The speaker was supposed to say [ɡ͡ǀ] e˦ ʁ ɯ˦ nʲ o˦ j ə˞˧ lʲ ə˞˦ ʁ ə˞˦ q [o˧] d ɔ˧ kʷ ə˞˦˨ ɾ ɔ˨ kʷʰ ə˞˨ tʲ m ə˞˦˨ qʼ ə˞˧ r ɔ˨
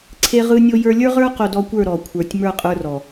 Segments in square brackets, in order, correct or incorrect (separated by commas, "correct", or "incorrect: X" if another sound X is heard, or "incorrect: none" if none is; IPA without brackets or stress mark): incorrect: ǀʰ, correct